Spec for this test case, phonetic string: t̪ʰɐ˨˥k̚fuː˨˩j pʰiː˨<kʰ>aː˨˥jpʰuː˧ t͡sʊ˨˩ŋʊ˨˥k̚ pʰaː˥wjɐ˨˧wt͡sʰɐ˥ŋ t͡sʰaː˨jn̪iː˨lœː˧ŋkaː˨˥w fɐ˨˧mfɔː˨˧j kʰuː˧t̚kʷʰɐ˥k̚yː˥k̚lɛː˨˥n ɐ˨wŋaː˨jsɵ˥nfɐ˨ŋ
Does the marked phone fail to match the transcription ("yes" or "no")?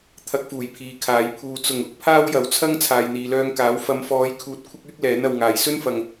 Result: no